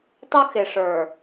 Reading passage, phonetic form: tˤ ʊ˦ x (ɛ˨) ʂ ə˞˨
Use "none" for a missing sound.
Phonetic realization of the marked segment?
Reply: ɪ˨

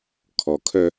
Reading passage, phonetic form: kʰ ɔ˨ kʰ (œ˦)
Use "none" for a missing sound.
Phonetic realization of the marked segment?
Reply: œ˦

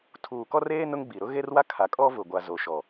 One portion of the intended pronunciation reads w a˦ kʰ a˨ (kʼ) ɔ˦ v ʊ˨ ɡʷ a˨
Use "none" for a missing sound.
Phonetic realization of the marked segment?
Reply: kʼ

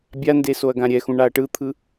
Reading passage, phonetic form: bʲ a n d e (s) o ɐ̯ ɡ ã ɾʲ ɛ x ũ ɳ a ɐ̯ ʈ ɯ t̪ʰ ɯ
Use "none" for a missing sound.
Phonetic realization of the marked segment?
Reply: s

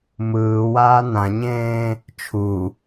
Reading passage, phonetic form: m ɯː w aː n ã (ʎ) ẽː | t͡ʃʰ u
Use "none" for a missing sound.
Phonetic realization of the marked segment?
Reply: ɲ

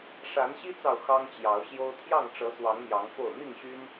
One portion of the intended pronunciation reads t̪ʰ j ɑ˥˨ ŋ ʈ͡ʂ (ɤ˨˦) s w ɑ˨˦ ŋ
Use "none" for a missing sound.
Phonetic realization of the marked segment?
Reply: ɤ˨˦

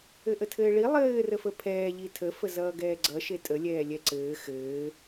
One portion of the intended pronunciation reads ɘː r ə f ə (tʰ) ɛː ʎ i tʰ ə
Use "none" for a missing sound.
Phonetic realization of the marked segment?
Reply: pʰ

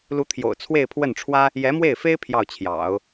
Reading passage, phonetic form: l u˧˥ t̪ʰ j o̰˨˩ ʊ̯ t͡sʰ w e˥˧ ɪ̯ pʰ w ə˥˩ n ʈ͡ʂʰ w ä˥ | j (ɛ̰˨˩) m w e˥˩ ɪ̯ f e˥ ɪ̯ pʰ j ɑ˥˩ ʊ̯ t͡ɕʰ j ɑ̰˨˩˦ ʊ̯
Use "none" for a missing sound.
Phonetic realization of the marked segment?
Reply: ɛ˧˥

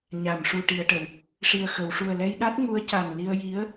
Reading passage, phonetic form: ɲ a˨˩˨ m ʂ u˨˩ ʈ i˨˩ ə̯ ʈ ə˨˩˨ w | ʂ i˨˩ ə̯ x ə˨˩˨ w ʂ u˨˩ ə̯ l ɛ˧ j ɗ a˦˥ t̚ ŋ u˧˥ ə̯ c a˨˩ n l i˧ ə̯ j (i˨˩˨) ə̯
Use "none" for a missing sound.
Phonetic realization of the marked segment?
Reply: i˧˥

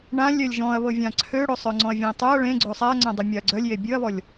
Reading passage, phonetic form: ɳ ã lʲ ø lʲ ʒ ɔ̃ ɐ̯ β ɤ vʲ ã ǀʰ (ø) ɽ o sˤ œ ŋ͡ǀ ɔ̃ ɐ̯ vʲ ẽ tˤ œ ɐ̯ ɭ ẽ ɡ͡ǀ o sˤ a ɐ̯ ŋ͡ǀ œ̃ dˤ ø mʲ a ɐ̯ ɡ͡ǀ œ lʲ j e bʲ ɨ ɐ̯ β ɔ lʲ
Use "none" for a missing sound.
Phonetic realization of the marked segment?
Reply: ø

